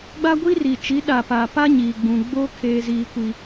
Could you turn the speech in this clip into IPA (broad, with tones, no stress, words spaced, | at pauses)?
ɡ͡ba˦ɡʷi˦ri˨t͡ʃi˨˦ ɗa˨pa˨pa˦ ɲiː˨ɡ͡bũ˨ ɡ͡bo˦ kʰeː˦ziː˦kʷi˦